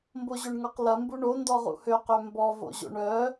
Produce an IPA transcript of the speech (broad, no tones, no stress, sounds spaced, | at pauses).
m b o ʑ ø ɳ ŋ ɔ q l ɐ m b u ɳ o n d ɔ ʁ ṵ h ø q ø m b ɔ v o̰ ʑ o̰ ɳ œ